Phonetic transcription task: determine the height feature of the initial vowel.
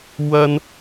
low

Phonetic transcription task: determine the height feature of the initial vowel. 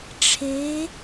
mid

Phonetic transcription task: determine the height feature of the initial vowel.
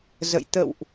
mid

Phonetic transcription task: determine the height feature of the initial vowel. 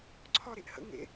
low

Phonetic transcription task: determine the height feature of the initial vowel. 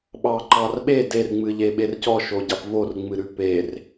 low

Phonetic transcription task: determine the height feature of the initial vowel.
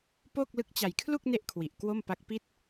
mid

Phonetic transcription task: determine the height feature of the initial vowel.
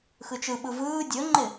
high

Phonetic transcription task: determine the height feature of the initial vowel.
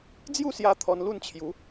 high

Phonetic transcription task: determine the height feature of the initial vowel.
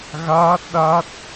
low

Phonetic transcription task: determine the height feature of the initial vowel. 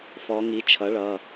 mid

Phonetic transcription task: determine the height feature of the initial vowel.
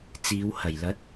high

